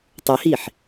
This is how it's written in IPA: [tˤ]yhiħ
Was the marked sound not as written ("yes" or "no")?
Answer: no